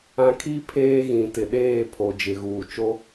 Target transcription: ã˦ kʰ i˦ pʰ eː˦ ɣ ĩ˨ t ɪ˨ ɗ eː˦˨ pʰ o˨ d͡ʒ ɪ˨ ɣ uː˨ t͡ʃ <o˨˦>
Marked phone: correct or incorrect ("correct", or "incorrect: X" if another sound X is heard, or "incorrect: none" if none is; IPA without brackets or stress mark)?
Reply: incorrect: o˦